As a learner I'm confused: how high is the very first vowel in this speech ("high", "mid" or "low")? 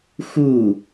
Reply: high